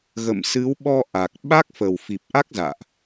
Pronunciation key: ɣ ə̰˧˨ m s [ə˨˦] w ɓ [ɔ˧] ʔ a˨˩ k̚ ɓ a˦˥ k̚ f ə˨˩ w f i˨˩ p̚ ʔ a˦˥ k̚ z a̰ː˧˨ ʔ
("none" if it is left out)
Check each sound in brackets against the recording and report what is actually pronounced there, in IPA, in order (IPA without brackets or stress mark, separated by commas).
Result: ɨ˨˦, ɔ˧